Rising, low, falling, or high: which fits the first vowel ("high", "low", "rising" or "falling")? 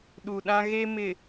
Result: low